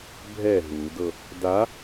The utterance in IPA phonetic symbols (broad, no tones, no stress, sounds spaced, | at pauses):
bʱ ɛ ɦ u d ɤ | d a